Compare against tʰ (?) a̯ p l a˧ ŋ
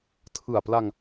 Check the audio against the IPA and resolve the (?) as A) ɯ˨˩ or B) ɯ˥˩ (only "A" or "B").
A